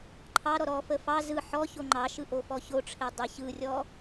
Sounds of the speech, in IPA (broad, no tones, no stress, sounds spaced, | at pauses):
ǃʰ ɑ ɾ ɔ ɾ ɔ f ə f ɑ z ɯ ħ ɔ ç o ŋ͡ǃ ɑ ʃ ɯ ʔ o f ɔ ç o ʈ͡ʂʰ e dˤ ɯ ç ɯ rʲ ɔ